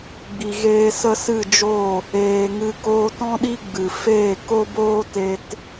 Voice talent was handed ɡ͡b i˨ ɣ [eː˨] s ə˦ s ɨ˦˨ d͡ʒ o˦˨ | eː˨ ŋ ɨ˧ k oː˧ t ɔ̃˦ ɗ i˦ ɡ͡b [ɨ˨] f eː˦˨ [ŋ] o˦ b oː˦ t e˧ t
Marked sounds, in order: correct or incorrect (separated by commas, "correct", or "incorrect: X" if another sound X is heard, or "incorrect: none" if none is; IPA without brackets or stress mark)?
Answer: incorrect: eː˧, correct, incorrect: k